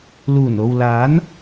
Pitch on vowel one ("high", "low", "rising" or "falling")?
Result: low